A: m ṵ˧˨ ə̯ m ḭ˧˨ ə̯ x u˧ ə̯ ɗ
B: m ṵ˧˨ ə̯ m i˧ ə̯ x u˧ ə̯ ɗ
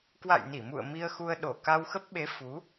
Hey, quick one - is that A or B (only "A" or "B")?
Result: B